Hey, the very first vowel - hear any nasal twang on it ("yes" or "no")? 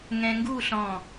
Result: yes